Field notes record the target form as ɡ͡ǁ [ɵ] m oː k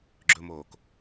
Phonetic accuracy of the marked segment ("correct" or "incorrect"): correct